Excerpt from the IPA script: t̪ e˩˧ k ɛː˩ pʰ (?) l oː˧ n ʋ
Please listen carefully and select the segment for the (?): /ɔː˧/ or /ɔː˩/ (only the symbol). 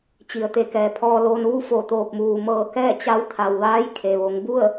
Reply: ɔː˧